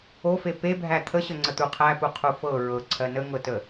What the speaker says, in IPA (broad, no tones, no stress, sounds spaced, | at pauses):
o f e p e bʱ æ t̪ʰ ə ɕ ə ŋ͡ǀ ə t̪ u qʰ æ p u qʰ u f ɤ ɹ ɤ ǀʰ ɜ n ə ŋ ɤ t ə